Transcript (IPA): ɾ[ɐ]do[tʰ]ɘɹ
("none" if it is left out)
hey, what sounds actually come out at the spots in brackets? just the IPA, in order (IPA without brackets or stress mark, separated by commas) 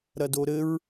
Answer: ɐ, ɾ